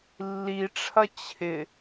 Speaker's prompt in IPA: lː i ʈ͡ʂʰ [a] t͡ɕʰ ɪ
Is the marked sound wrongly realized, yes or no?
yes